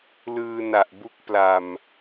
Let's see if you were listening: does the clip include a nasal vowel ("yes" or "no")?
no